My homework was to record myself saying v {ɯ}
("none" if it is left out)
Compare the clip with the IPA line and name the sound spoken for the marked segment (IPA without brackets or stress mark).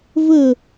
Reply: ə